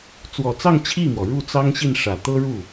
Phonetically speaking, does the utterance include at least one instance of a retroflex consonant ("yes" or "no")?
yes